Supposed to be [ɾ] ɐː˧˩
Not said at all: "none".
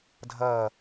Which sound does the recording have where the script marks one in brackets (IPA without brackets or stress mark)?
dʱ